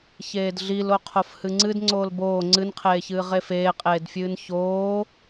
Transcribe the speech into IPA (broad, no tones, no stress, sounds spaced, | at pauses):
ç eː d ɮ i l o qʰ o f h ɨ ŋ͡ǀ ɨ d ŋ͡ǀ oː l b oː ŋ͡ǀ ɨ n qʰ eː ç ɨː ʁ e f eː qʼ eː d fʲ ɨː n ç oː